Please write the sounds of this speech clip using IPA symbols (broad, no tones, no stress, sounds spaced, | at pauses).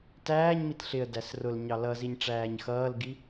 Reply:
t æː ɲ m i t ɬ ɪ ə̯ d æ s r ʊ l ɲ ɑ l ʌ z i ɲ ʈ͡ʂ æː ɲ x ʌː l ɡ i